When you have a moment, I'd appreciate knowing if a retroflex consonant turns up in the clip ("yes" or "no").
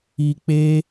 no